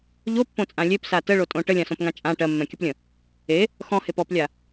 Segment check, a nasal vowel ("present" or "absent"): present